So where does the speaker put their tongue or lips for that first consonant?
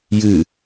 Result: palate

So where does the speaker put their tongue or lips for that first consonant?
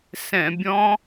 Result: tongue tip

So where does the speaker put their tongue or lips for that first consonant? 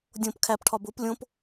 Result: tongue tip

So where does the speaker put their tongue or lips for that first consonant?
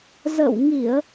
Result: tongue tip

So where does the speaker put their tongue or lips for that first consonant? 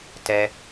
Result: tongue tip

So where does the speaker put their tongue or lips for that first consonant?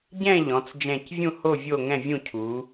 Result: palate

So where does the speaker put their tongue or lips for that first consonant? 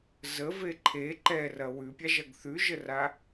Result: tongue tip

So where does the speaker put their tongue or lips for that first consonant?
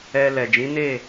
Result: tongue tip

